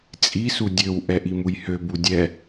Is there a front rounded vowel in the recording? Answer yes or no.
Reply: yes